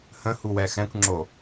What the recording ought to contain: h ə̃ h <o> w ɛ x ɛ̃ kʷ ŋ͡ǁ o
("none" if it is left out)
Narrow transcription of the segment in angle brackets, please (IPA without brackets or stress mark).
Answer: u